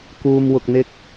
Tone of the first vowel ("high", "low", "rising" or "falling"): low